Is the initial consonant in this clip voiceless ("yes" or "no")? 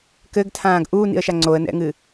yes